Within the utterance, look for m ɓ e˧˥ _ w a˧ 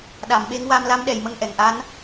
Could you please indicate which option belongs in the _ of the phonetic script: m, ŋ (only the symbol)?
ŋ